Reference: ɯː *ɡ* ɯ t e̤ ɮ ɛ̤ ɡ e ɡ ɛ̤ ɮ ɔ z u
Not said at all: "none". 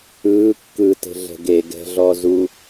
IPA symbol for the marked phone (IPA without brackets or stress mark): kː